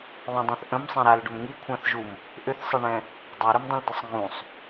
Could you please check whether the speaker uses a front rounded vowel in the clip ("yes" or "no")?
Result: yes